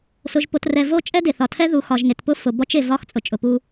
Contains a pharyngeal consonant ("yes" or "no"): no